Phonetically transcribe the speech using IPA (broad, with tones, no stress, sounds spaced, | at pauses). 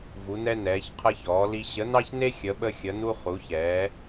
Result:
v u˩˧ n ɛ˧ n ɛː˩˧ ç qʰ əː˧ ç ɔː˩˧ l i˧ ɕ ə˩˧ n ɑ˧ ç n e˧ xʲ ə˩˧ ɓ ə˧ xʲ ə˩˧ n u˧ χ u˩˧ ç ɛː˩˧